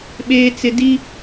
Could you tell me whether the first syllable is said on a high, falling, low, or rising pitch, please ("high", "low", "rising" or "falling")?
high